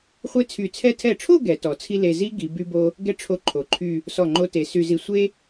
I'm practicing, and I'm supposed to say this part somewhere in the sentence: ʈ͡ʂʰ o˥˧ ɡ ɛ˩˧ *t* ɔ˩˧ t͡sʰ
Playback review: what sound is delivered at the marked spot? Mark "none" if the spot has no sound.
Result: t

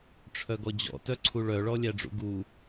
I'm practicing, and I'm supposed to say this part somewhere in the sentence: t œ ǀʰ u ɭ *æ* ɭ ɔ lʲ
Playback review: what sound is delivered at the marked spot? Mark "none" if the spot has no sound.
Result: œ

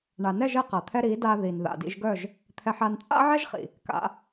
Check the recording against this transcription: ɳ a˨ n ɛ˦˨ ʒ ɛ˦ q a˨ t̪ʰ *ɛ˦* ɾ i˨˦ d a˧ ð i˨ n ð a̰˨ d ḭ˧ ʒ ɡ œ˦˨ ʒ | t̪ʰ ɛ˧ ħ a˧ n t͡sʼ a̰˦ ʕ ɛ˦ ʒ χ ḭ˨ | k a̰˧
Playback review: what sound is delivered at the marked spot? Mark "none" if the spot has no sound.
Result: ɛ˦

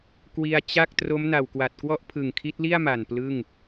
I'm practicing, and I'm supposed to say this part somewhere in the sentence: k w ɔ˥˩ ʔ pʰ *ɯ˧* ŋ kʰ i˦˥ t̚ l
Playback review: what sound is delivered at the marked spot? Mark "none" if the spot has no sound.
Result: ɯ˨˩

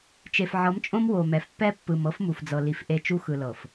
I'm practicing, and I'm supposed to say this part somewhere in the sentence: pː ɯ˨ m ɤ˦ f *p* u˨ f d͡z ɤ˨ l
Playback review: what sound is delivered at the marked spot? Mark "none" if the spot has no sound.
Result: m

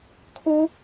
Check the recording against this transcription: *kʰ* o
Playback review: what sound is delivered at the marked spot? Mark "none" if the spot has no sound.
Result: kʰ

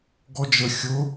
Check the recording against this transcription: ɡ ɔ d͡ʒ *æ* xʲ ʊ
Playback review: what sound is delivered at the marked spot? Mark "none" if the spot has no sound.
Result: ə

